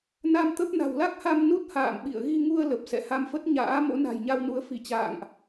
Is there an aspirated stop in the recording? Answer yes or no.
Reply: no